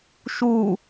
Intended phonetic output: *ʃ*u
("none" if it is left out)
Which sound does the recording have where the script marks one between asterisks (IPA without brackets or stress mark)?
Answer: ʃ